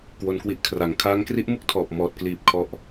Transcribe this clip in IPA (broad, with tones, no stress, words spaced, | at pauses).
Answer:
kwo˧nkwi˦˥ʔkʰra˩˦ŋ kʰaː˦˥ŋ kri˦˥ʔmu˥˩k̚ tʰɔː˨˩p̚ mɔː˨˩t̚ kliː˨˩p̚ kʰɔ˦˥ʔ